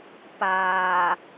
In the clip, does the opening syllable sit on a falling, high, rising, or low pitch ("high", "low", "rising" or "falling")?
low